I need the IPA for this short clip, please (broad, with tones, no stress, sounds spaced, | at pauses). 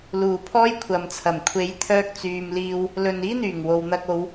l uː˨˩ pʰ ɔː˥ j kʷʰ ɐ˨ m t͡sʰ ɐ˨˩ m kʷʰ e˨˥ j t̪ʰ œː˧ k̚ t͡s yː˨ m l iː˧ w | l ɵ˨ n iː˥ n̪ yː˨˩ ŋ w o˨ w n̪ ɐ˧ k̚ o˨˧ w